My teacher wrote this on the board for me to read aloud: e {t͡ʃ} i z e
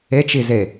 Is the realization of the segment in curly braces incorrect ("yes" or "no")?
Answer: no